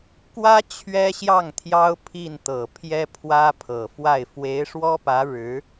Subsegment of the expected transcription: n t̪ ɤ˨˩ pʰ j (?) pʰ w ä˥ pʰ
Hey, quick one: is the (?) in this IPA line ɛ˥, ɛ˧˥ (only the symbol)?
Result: ɛ˥